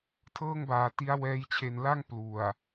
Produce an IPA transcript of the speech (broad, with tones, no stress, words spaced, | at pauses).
tʰɤː˥˩ŋbaː˨˩ti˦˥a̯ wɛː˦˥j t͡ɕʰe˨˩nla˥˩ŋ plu˨˩a̯